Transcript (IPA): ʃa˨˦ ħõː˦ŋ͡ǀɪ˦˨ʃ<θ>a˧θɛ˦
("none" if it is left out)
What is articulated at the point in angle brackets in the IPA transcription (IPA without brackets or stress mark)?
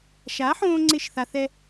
θ